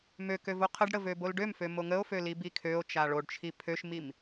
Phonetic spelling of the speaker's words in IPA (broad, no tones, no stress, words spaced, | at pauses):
møkø voqʰəɖɽə vøbolɖømfø moŋəo̯fø libikʰøo̯t͡ʃa ɭoɖt͡ʃʰi pʰøʃmim